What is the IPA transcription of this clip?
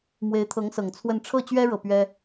m w e˧˥ ɪ̯ t̪ʰ ɤ˧˥ ŋ s ɤ˨˩ ŋ t͡sʰ w ə˥˧ n ʈ͡ʂʰ ɤ˥˩ t͡ɕ ɥ ɛ˥ ɻ ɤ˥˩ p ɥ ɛ˥

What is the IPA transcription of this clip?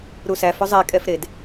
ɾ u s æ f ɵ zˤ e kʼ ɛ f ɾ e d

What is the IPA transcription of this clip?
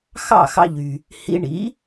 x ɑ̰˥˩ x ɑ̰˧ ʎ y˩ | h ḭ˧ ɳ ḭ˩˥

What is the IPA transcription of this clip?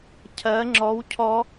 cʰ ɜ ŋ͡ǁ ɔ w cʰ ɔ

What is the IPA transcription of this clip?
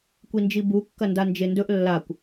kʷ i n d͡ʒ i b u kː ɐ n d a n d͡ʒ e n d ɵ ʔ lː a kʷ

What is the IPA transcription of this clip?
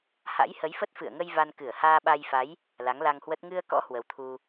h a̰˧˥ j h ə˨˦ j f ə˦˥ t̚ f ɨ̰˧˨ ə̯ ŋ ə˧ j v a˧ n k ɨ˧˩ ə̯ h aː˧ ɓ a˧ j f a˨˦ j | l a˨˦ ŋ l a˧ ŋ h w ə˦˥ t̚ ŋ ɨ˧ ə̯ k ɔ̰˧˥ h w ə˨˦ w t̪ʰ u˧

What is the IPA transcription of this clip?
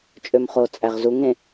t͡ʃʼ ø m χ o t͡sʼ æ ʁ z u ŋ ẽ

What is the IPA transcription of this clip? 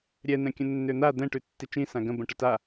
ɾʲ ɛ n̪ ɛ̃ kʲ ə̃ nː ø n̪ a d̪ ɛ̃ ʈ ʉ tː i t͡ʃ ĩ s ã ɡ ə̃ b ə̃ ʈ ə t a

